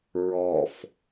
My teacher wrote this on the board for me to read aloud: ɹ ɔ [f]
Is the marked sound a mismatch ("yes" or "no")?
no